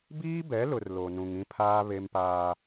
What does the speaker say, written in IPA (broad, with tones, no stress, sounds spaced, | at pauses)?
b iː˦ b ɛ˨˦ l ʊ˨ r l o˨ n ũ˨ ŋ ĩ˦ pʰ aː˦ β e˦ m p aː˦